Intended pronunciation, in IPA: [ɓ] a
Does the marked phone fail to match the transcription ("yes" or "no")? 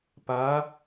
yes